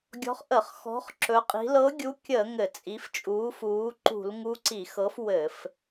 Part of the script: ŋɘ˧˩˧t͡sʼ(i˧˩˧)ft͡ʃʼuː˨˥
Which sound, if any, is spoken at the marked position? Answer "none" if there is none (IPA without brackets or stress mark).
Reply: i˨˥